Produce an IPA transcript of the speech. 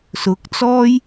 sʊ˨˥k̚t͡sɔː˥j

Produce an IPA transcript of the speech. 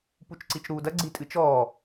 put͡ʃǀit͡ʃɾuːdɐ ɡ͡ǀitʼɨt͡ʃɔː

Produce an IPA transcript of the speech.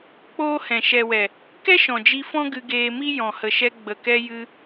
k͡poː˦hɛ̃˨ ʃɛ˨wɛ˨ | kɛ˦ʃɔ̃˨d͡ʒi˧ fɔ̃˦ɡɨ˧ ɡeː˧mi˦ jɔ̃˨hə˨ʃɛ˧ ɡ͡bə˨kɛ˧ jɨ˧

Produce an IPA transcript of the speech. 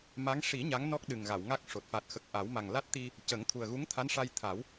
ma˧˥ŋ ʂi˨˩˦ ɲa˧˥ŋnɔ˦˥k̚ ɗɨ˨˩ŋɣa˨˩˨wŋa˦˥k̚ʂo˨˩t̚ fa˨˩t̚xə˨˩k̚ʔa˨˩˦w ma˨˩ŋla˦˥t̚t̪i˧ | cə˨˩˦ŋt̪ʰu˨˩ə̯ɣu˧˥ŋ t̪ʰa˧˥nʂa˧jt̪ʰa˨˩˦w

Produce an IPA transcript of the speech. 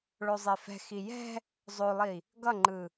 ɭozˤefɛ̤xi jɛ̤ | zˤolˠi | ɡʌŋ͡ǃɯ

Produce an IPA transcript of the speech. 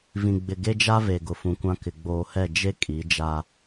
vĩ˨ɡ͡bɪ˨ ɡe˦d͡ʒa˦ve˨ ɡʊ˨fũ˨kʷã˦ kɪ˨ ɡ͡boː˨hɛ˦˨ d͡ʒe˦ kʼi˨˦d͡ʒa˦

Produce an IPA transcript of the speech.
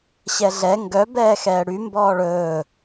ɕɛɮɛ ŋɡœ bɛːxɛːɽy mbɔːɭɵː

